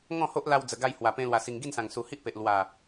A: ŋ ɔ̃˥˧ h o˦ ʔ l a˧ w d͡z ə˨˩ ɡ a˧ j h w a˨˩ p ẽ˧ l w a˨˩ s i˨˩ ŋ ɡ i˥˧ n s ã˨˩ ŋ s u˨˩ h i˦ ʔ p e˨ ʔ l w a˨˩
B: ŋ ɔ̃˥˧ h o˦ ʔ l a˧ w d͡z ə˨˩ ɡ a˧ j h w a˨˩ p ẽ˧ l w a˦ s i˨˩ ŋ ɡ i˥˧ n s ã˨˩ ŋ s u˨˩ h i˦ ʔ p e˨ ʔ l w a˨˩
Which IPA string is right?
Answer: A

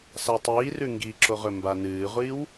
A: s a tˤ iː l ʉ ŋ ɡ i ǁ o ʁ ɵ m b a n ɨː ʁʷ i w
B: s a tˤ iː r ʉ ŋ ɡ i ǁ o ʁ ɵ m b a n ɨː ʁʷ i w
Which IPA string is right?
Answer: B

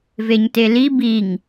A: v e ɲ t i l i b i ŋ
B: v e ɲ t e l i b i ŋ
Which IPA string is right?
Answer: B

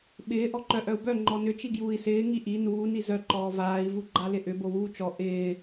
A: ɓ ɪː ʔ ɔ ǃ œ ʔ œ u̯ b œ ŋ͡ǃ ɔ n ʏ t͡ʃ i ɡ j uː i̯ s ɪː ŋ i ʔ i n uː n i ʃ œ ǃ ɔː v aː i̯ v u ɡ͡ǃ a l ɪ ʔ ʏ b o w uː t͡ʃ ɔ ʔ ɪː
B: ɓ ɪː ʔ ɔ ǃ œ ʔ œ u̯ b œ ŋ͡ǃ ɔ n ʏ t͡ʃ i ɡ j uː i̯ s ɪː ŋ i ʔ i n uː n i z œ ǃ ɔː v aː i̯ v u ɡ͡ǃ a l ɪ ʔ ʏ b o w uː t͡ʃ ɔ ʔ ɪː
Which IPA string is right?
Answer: B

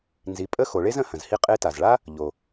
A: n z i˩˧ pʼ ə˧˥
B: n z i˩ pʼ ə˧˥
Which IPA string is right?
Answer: A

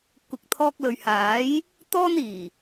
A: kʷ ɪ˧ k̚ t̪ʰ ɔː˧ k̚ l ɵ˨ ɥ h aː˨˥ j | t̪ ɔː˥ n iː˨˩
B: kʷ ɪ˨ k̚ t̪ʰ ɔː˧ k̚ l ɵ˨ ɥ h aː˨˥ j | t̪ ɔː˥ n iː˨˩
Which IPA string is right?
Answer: B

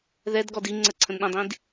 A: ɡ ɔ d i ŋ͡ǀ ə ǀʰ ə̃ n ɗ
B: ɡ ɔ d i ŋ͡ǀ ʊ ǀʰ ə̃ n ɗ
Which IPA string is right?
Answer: A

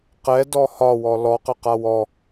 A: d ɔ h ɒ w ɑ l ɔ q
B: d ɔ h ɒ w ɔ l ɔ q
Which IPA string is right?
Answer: B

